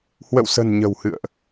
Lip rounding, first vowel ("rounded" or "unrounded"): unrounded